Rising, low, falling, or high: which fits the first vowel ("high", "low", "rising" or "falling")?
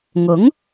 rising